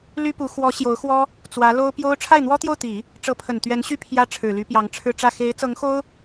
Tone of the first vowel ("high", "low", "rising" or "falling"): high